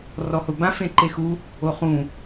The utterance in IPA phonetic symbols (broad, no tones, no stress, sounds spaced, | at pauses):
r ɔ h ʊ b ã f ẽ ǃ e x u | o χ ũ